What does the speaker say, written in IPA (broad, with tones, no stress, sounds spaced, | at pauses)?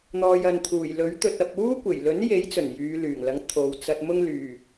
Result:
n̪ ɔː˨ j ɐ˨ n t̪ʰ uː˨˩ j l ɵ˨˥ ɥ t̪ ɵ˧ t̚ ɐ˧ p̚ uː˥ kʷ e˨˩ j l ɵ˨˥ n j e˨˥ j t͡s ɵ˨˩ n j yː˨˧ l yː˨˩ ŋ l ɐ˨˥ ŋ t̪ʰ o˨ w t͡s ɐ˧ t̚ m ʊ˥ ŋ l yː˨˩